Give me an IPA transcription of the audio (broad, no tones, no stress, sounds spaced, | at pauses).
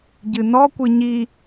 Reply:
ɟ ɨ n ɔ kʷ ɨ ɲ i